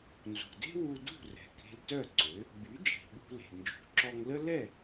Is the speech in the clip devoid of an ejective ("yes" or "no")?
yes